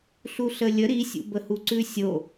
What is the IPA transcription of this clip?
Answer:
ɬuɬəlʲə ɾisʲṵbəhu ǀʉsʲo

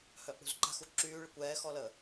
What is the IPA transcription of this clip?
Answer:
hœʔɽṳzǃa̤xu ǁyːɭəkʷ ɛːxɔləː

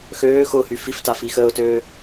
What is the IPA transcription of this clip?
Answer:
xøː xʊhy fif tafixəːʊ̯tøː

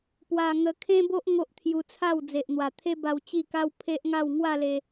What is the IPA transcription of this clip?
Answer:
pwa˧ŋə˧kʰẽ˦bo˦ʔ ŋo˦ʔt̪ʰju˧t͡sʰa˥˧w d͡ze˨ʔn̪wa˨˩t̪ʰe˦ba˧w t͡ɕi˥˧ka˦w pʰe˦ʔŋa˥˧w ŋwa˥˧le˧

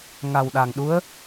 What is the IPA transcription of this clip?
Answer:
ŋa˨˩wɗa˨˩ŋɗu˧˥ə̯

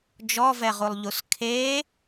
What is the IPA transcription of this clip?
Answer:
d͡ʒɔvɛʁulˠʎus kʰe

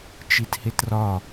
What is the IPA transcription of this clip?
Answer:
t͡ʃithetrɒ

